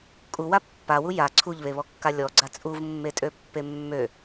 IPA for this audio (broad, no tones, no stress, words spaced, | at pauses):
kʼuwa pːawu ja ǀʰuʎβeβɔkːa lʲɔɡ͡ǀa t͡sʼuvmːetʼøpːe mːø